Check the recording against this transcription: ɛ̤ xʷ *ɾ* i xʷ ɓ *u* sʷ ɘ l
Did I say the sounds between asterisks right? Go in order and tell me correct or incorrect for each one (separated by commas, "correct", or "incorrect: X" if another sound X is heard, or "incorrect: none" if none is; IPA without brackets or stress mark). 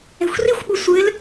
incorrect: r, correct